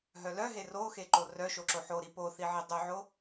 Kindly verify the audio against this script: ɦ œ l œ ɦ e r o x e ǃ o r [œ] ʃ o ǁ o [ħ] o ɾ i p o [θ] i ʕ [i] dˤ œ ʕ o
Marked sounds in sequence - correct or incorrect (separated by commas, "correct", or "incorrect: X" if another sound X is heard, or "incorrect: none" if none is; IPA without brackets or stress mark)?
correct, correct, correct, correct